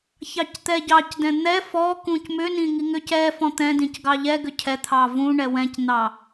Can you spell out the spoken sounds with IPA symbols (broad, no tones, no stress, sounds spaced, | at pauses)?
ç ɑ c t̪ ɛ ɟ ɑ c d ɛ̃ n̪ ɛ f ɔ k ũ c m ʏ n ĩ ŋ i ŋ ʏ c ɛ f ɔ̃ t̪ ɛ̃ d ĩ c ɡ ɑ ʎ ɛ ɡ ʏ cʰ ɛ t̪ʰ ɑ v ũ ɳ ɛ w ɛ̃ c n̪ ɑ